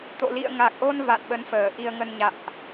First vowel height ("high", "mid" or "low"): mid